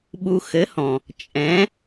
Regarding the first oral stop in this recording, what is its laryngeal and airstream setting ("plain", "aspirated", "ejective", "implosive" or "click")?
implosive